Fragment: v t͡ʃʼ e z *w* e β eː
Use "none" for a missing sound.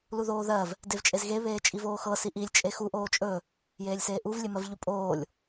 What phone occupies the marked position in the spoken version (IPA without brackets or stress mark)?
ɣ